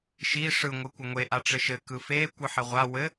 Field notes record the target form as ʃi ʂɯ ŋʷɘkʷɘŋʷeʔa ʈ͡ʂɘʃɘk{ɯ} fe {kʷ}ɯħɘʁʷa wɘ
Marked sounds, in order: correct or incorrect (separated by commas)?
correct, correct